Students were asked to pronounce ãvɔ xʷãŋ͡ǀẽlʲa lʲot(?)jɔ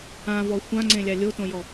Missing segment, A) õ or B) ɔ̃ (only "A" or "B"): A